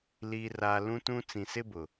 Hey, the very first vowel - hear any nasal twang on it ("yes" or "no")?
no